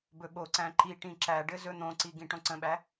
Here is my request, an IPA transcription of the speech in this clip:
bɵɓoǀæ̃ ǃiʈĩ ǁæɖɘ zɵn̪õǀi ɡĩʈõǀə̃ɓæ

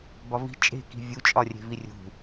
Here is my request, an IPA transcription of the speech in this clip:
bɒvi̤ t͡ʃʼe̤ki̤ vʲut͡ʃʼɒ rʲe̤virʲṳ

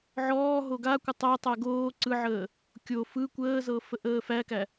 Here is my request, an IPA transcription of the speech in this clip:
ʕɔː ɦoɡakʷə tˤætˤæ ɡoː ǀɯʕəː | kʲo fɯ kʷəːzɤ fəʔəːfækæ

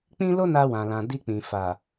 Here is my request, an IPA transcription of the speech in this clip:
k͡pĩ˦ lo˦na˧wã˨ lã˨ di˧k͡pĩ˨ fa˨

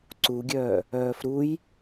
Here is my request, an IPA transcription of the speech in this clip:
ǀuɡʲœː | œːfɾuj

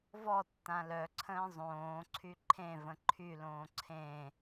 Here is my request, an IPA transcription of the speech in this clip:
vɔ tːãlœǀʰə̃ː zˤõːǀʰy ǃʰẽvə̃ ǃʰylõː ǀʰẽ

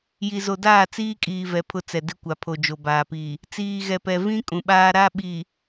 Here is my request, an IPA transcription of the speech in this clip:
ji˨zo˨ daː˦˨t͡siː˦kʼiː˨ vɛ˨˦pʰʊ˦t͡sɛ˨ dɪ˦kʷa˨pʰo˨d͡ʒo˨ baː˨pi˨ | t͡siː˨ɣɛ˨pɛ˨vĩ˦ kʼũ˨ɓaː˦ ɾa˦ɓi˨

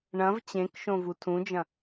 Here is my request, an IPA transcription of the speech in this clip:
ɳɐ̃v t͡ɕẽkʃõ vutʰũd͡ʒɐ̃

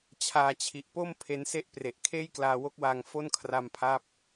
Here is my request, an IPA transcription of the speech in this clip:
t͡ɕʰaː˧t͡ɕʰi˨˩ʔpo˥˩m pʰe˦˥nse˥˩ʔpre˨˩ʔ kʰeː˥˩jklaː˧wo˦˥k̚waː˧ŋ fo˥˩nkʰra˧mpʰaː˦˥p̚

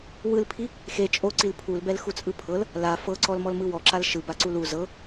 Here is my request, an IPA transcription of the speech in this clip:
wɯlpʰi | xe t͡ʃʼoǀil pʰulbɛlxut͡sʼɯ pʰɤl | la fɤǀɔlmɔlmɯ wɔǁal ʃɯbaǀul u zɤ

